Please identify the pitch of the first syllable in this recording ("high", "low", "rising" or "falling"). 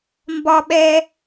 high